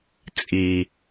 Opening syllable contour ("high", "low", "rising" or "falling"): low